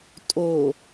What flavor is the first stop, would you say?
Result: ejective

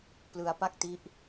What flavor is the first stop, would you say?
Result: plain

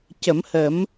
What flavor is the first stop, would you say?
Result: plain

